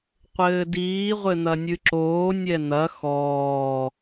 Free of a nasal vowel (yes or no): yes